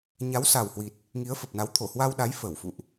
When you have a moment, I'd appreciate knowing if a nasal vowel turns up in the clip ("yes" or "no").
no